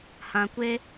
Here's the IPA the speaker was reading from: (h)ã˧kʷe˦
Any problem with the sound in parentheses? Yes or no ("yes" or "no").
no